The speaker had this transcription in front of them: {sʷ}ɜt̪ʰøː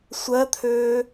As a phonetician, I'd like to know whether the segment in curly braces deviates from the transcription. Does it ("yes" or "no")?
no